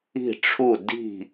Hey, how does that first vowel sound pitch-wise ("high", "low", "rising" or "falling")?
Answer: falling